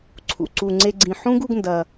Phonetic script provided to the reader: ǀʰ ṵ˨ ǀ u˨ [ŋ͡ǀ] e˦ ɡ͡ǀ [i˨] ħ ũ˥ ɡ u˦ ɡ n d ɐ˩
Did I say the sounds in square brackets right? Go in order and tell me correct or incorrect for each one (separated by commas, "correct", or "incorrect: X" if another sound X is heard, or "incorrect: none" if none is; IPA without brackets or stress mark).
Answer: correct, incorrect: ĩ˨